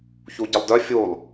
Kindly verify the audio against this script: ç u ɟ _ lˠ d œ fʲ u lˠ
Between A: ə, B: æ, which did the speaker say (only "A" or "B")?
A